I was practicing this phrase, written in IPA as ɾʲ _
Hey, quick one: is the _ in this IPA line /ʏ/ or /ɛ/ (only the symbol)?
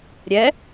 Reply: ɛ